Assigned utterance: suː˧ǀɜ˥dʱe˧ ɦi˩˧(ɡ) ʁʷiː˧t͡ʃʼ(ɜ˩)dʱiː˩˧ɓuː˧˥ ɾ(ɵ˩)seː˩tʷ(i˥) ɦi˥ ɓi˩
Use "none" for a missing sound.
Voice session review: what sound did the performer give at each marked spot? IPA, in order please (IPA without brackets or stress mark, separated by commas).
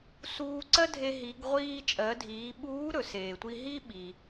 ɡ, ɜ˩˧, ɵ˩, i˧